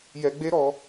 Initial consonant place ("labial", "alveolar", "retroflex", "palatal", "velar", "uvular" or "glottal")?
palatal